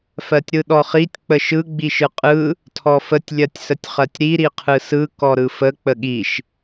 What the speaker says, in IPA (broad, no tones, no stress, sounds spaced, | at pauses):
f ɜ tʲ ɾ ɯ ɗ ɔ χ i tʲ k͡p ə ʃ ɯ ɡ͡b i ʃ ɯ qʼ ɯ | tʰ ɔ f ə tʲ lʲ ɜ tʲ s ə tʲ χ ɜ tʲ ɾ i ɾ i qʰ ɯ s ɯ k ɔ ɾ ɯ f ə k͡p ə ɠ i ʃ